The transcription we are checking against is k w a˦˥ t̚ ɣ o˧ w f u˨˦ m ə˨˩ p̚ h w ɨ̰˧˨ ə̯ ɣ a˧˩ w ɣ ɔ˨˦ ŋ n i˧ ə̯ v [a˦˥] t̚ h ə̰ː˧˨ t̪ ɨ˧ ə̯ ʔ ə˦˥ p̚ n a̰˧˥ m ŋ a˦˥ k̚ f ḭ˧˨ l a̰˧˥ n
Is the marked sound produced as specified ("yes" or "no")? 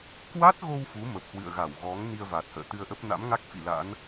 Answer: no